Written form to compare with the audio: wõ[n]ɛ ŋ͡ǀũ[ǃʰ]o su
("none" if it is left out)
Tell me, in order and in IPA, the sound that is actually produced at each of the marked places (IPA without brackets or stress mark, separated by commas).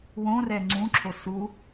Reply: r, ǁʰ